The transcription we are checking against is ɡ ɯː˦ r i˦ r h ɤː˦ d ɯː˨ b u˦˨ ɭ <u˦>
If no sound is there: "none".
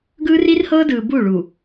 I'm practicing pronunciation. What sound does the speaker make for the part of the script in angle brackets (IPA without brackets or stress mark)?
u˨